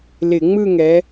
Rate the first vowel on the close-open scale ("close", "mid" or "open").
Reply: close